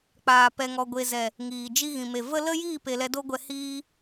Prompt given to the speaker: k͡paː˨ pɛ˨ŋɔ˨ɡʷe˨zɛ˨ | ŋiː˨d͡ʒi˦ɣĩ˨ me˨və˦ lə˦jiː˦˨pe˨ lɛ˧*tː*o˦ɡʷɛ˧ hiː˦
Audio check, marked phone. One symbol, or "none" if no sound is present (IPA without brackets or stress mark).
d